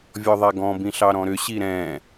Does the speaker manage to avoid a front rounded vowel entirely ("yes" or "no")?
no